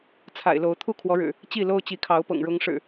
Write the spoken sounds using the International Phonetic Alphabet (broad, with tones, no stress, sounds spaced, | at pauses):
t͡sʰ a̰˨˩ ɪ̯ l o˨˦ ʊ̯ t̪ʰ u˥˨ kʰ w ɔ˨˦ ɻ ɻ̩˨˩ | t͡ɕ i˥˨ l o˦ ʊ̯ t͡ɕ i˨˦ kʰ ɑ˨˦ ʊ̯ p ɤ̰˨˩ ŋ ɻ ʊ˨˦ ŋ ʂ ɻ̩˨˩